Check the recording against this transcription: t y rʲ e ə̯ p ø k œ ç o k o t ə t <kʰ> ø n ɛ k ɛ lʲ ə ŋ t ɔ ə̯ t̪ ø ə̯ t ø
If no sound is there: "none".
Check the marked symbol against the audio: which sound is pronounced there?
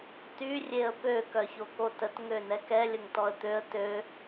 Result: ŋ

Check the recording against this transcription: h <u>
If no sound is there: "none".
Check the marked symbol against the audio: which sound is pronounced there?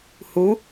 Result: u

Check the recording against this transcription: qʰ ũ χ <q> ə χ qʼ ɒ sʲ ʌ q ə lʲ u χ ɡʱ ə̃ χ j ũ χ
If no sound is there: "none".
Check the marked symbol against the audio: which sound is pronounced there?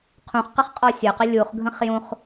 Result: q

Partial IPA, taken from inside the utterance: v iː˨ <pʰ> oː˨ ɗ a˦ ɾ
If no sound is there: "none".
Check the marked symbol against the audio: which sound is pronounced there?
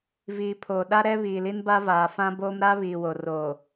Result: pʰ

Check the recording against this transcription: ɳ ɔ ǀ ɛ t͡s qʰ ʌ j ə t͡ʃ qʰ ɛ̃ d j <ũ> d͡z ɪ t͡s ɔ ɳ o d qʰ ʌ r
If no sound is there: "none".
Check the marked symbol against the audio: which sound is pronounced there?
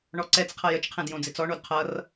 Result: õ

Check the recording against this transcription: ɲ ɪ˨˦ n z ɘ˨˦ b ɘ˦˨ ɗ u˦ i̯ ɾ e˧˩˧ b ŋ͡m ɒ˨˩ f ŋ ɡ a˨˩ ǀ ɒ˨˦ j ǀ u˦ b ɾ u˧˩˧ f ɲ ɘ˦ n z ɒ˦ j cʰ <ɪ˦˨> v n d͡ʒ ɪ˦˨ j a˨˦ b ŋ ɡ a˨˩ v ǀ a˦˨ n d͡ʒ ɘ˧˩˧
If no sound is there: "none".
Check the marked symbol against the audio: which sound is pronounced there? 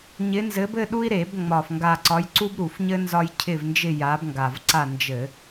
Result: ɪ˦˨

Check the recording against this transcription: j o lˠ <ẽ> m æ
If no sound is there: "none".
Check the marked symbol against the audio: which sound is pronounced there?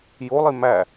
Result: e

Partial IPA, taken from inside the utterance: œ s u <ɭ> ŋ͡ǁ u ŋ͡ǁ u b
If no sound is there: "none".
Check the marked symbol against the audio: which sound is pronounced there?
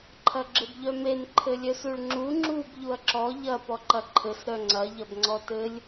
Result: ɭ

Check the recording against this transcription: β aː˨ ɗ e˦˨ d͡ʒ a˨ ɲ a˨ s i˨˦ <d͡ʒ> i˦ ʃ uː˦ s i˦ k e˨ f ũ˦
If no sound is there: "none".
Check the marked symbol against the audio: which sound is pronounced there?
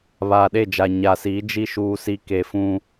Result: d͡ʒ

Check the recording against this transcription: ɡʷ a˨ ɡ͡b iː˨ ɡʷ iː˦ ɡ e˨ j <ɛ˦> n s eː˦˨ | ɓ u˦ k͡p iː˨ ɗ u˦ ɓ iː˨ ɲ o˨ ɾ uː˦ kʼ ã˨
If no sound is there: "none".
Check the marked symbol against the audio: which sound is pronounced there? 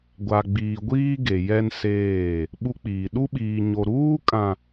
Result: ɛ˦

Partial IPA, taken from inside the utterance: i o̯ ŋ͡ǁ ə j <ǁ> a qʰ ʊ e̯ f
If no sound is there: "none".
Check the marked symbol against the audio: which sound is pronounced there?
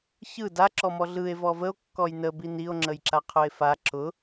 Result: ǁ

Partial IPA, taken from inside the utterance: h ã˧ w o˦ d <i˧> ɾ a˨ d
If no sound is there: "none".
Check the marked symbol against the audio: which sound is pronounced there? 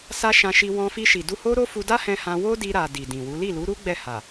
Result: i˧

